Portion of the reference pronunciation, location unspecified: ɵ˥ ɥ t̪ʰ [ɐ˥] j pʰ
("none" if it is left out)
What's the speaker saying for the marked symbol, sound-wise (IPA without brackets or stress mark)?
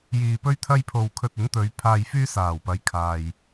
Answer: ɐ˥